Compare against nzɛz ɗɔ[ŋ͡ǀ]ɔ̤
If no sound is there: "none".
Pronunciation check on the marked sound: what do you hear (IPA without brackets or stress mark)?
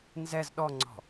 ŋ͡ǀ